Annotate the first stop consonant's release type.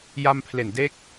aspirated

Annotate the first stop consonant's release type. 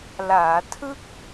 aspirated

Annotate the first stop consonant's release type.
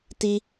plain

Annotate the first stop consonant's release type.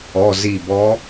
plain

